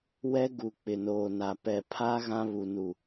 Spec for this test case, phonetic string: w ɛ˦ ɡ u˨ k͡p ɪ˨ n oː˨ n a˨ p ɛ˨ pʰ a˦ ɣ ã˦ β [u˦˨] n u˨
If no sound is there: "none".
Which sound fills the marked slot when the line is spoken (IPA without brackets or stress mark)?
u˨